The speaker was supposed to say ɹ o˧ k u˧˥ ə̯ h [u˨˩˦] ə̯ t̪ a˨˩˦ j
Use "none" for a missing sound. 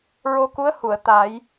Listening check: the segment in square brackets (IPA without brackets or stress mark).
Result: u˨˩˨